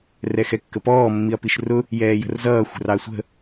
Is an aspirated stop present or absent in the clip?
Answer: absent